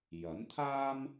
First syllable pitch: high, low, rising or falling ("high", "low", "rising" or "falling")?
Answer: rising